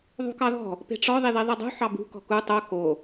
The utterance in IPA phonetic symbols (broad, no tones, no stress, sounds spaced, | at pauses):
ðˤ ṳ k ɑ ð ɔ̤ | p e̤ ʈ͡ʂ ɔ ðˤ i ð i ðˤ i dˤ ṳ ħ ɑ b ṳ k ɔ̤ k u tˤ o k o